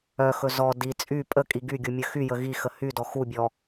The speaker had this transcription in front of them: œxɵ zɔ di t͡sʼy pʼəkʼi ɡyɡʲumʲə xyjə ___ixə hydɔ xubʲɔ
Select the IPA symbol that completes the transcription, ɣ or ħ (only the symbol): ɣ